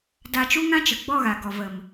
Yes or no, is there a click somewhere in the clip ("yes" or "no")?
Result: no